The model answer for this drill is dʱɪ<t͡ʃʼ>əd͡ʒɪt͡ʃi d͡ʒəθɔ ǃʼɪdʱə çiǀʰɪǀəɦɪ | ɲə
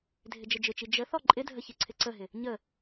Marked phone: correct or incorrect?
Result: incorrect